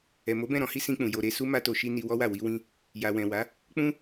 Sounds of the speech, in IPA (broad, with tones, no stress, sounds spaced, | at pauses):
ɛ˨ m o˨˦ b ɛ̃˦˨ ɾ ɔ̃˨˦ h i˦ s ĩ˧ k͡p ũ˨ j o˨ ɾ e˨ s u˧ m a˧ t o˨ ʃ i˧ n i˧ w ɔ˦ w a˦˨ w i˧ w ĩ˧ | j a˨ w ɛ̃˨ w a˨˦ | k͡p ũ˧